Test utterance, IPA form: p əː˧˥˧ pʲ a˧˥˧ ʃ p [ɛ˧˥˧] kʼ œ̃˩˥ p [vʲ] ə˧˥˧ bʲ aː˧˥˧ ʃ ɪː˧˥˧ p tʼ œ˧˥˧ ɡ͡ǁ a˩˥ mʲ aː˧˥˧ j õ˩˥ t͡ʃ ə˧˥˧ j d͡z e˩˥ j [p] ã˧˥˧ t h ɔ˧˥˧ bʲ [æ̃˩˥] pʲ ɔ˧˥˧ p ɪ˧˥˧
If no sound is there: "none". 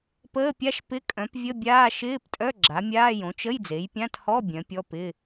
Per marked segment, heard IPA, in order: ɪ˧˥˧, vʲ, pʲ, œ̃˩˥

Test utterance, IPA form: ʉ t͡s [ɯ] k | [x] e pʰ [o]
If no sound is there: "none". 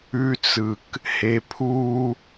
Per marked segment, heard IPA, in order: ɯ, h, u

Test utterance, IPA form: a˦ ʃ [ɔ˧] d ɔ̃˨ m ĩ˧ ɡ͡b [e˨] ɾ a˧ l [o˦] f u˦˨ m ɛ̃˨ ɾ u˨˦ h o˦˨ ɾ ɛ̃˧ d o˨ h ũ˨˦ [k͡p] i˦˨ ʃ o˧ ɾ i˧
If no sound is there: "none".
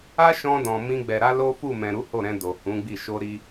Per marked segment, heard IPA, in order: ɔ̃˧, ɛ˨, o˦, ɡ͡b

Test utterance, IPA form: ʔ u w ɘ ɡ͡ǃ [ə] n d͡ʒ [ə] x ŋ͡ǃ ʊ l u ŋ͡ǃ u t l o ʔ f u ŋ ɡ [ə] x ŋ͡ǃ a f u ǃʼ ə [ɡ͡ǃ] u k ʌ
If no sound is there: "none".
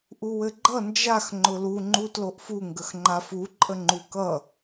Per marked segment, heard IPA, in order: ʌ, a, ə, ŋ͡ǃ

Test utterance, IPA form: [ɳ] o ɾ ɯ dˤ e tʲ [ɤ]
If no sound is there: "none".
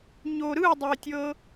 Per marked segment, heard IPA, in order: ɲ, ɤ

